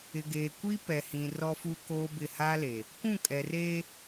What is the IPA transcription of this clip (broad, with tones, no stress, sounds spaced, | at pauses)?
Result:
ɪ˨ ɡ eː˨ kʷ i˦ p ɛ˨ h ĩ˨ r ɔ˦ f u˦ k oː˦ b ɪ˦˨ h a˦ l e˨ | kʷ ũ˦˨ kʼ ɛ˨ r eː˦